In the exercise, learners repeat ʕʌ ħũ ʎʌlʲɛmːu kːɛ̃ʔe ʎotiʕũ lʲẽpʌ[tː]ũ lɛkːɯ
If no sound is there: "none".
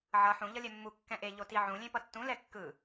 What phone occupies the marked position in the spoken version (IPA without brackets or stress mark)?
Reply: tː